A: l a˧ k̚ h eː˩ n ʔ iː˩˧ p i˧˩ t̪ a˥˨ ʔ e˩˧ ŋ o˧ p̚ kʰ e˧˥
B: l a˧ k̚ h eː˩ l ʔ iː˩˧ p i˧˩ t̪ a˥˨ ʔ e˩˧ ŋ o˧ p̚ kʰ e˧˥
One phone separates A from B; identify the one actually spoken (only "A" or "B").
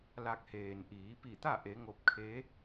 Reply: A